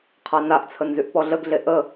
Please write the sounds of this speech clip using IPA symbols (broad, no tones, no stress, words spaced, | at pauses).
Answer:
qʰanaʔt͡sʰənzyʔ pɔɮəɡɮe ʔə